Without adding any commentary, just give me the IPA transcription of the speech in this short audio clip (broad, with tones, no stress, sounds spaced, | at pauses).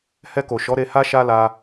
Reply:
h ɛ˧ k o˨ ʃ ɔ˨˦ ɾ e˧ h a˦ ʃ a˦ l a˧